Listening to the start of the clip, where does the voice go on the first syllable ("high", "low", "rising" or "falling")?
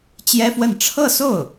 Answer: high